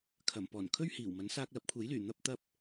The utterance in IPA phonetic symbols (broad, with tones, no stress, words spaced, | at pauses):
kʰɐ˨˩mpɔː˨˩n kʰɵ˥ɥhiː˨˩wmɐ˨˥n saː˧k̚lɐ˨˥p̚kʷʰe˨˥jlyː˨˩ n̪ɐ˧p̚t̪ɐ˧p̚